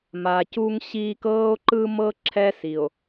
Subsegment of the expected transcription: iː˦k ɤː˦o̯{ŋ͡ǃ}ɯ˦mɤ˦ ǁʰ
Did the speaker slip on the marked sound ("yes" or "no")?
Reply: yes